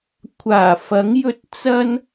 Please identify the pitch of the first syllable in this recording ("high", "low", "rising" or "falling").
low